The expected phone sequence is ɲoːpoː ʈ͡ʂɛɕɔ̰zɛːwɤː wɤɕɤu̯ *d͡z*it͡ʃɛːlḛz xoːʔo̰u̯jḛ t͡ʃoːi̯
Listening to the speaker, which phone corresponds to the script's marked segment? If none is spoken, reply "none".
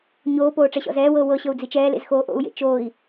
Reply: d͡z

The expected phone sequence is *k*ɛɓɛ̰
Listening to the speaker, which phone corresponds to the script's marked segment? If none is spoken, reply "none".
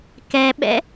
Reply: k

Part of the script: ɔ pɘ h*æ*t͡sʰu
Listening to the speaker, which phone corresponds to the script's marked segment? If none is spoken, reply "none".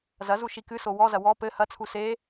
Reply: ɐ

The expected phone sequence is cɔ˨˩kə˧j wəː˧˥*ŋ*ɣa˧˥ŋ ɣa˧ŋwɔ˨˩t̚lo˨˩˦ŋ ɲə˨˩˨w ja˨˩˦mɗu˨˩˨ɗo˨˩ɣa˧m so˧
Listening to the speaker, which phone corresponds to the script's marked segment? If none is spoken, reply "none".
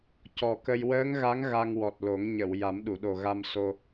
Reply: ŋ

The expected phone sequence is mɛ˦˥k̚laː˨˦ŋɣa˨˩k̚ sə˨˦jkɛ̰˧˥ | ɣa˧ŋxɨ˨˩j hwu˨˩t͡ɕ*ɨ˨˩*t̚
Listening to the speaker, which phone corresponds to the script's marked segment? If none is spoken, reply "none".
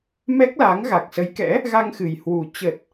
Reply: ə˨˩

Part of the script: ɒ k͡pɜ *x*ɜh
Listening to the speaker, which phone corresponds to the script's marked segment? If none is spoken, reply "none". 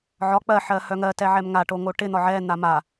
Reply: ħ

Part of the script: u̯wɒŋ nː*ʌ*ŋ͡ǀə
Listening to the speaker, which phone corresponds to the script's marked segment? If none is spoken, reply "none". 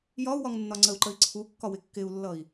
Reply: ɒ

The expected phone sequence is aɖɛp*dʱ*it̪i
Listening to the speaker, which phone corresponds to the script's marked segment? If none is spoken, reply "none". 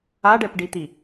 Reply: ɖ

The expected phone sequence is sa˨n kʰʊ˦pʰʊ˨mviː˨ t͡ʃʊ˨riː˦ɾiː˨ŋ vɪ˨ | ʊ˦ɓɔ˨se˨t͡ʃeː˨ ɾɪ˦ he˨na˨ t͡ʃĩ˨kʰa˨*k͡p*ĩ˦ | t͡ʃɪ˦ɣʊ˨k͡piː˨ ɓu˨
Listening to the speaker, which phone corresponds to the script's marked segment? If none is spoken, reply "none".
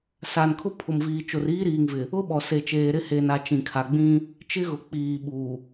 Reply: ɡ͡b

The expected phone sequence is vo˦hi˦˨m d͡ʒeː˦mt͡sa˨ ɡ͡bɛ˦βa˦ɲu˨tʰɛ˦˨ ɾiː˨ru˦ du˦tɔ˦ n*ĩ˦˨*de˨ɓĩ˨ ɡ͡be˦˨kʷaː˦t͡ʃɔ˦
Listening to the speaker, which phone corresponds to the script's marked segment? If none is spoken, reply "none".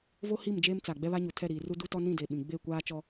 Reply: ĩ˦˨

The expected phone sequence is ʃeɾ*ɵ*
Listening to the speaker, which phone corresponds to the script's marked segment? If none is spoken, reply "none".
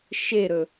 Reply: ɵ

